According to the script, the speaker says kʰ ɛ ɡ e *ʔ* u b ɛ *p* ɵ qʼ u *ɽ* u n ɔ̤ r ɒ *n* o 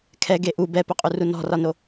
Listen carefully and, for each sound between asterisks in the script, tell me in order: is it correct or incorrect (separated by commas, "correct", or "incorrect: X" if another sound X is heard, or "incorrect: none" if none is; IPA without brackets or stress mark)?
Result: correct, correct, incorrect: r, correct